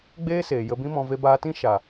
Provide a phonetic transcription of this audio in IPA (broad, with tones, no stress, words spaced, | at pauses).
ɡ͡beː˦seː˨ jə˧bĩ˦mɔ̃˧ ve˧baː˧tĩ˦ ʃa˨